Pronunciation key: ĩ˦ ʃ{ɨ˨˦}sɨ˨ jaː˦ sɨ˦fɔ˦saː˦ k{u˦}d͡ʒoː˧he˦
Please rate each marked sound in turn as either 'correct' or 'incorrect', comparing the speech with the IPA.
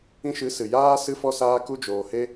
correct, correct

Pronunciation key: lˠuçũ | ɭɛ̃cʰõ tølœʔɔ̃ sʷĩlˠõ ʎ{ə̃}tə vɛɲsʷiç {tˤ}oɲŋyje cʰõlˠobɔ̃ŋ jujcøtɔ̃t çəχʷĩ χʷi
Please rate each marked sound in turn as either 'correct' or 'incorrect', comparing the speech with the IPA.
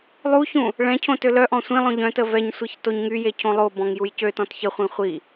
incorrect: œ̃, incorrect: t

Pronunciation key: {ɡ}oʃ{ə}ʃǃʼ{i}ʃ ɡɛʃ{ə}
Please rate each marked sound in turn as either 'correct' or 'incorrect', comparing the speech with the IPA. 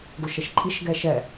correct, correct, correct, incorrect: ɛ

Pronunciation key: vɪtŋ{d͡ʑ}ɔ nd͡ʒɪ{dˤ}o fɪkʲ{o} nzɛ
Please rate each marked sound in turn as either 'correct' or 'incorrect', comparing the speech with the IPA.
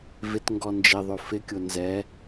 incorrect: ɡ, incorrect: ðˤ, correct

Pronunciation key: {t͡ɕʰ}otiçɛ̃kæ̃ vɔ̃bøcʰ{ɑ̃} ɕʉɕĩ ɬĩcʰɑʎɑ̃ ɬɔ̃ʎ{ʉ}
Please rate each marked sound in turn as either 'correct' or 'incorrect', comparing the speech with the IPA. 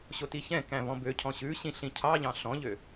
incorrect: ɕ, incorrect: ɔ̃, incorrect: ø

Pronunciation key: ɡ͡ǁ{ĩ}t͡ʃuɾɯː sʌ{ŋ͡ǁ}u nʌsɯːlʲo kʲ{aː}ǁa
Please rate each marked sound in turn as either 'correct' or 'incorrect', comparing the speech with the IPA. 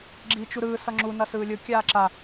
incorrect: i, correct, correct

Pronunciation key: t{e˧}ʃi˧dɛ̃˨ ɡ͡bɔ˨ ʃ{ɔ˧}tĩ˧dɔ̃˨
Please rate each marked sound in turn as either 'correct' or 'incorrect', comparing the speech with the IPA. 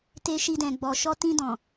correct, correct

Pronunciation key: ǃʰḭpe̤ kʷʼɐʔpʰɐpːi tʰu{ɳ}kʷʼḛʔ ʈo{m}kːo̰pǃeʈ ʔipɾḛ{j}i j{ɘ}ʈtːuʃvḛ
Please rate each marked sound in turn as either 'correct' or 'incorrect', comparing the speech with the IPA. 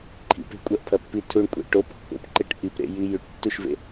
correct, incorrect: p, correct, incorrect: ʉ

